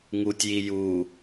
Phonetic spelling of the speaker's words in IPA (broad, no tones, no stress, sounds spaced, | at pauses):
ŋ u tʲ j i j u